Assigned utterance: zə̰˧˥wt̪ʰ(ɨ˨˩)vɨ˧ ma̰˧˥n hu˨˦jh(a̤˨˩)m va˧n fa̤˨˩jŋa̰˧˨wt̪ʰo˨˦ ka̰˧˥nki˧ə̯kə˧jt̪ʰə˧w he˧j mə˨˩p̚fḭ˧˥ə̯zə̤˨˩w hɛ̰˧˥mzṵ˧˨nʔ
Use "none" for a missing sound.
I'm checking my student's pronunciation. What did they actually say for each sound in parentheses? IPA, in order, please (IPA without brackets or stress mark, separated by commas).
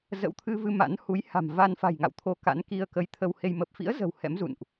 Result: ɨ˧, a̤˨˩